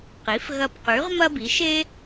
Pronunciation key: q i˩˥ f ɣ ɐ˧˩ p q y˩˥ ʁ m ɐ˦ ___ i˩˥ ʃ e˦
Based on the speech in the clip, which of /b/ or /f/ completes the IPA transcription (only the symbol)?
b